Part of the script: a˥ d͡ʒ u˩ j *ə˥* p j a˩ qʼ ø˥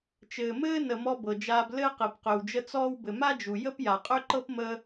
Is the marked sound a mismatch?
no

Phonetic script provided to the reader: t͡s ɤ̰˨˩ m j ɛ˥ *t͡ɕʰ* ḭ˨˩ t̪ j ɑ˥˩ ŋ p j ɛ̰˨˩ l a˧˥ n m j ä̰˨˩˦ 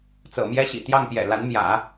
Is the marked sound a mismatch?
yes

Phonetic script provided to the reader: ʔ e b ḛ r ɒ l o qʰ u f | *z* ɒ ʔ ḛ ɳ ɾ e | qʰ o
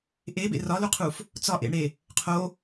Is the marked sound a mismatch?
yes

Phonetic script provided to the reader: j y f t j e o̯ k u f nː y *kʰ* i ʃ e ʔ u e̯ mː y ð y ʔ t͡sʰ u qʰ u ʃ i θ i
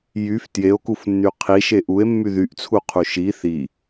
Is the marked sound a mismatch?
yes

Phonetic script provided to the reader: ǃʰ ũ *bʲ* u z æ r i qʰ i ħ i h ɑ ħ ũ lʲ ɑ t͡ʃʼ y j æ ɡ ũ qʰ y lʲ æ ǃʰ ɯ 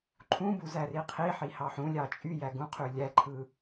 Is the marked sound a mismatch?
yes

